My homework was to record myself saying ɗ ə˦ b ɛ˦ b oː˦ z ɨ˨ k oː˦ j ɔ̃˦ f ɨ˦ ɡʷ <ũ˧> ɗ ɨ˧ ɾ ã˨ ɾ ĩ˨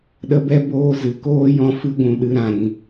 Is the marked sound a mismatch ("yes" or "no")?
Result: no